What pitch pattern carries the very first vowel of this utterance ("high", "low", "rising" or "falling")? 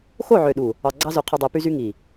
falling